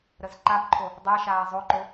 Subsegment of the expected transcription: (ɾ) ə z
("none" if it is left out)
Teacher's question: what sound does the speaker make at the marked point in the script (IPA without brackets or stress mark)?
ɾ